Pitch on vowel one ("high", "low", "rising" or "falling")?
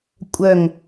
falling